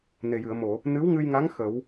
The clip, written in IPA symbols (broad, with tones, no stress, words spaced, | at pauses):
ne˨˩jɨ˨˩˨ə̯mo˨˩˨ | nɨ˧˥wŋɨ˧jŋa˧˥ŋ xə˨˩˦w